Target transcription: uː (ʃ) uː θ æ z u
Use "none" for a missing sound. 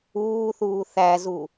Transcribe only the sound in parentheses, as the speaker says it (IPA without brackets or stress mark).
θ